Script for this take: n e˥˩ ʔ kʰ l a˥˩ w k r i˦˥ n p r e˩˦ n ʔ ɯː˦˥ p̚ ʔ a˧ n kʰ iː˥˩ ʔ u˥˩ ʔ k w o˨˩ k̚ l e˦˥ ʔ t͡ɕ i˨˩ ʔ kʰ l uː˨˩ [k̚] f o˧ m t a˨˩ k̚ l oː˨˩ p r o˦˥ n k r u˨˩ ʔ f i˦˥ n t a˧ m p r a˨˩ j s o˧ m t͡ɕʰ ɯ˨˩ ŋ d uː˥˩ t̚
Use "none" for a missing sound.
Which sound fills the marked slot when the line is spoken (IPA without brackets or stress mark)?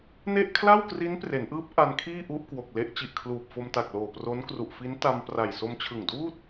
p̚